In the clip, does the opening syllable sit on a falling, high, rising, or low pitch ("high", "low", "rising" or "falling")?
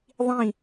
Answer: falling